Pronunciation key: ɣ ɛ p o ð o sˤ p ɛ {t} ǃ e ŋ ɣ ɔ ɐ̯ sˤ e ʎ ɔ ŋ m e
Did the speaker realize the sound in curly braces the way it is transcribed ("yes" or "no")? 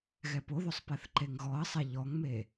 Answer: no